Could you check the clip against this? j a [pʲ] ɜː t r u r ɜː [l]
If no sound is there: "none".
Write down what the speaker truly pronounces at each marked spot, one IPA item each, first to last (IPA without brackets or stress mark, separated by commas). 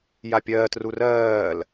pʲ, l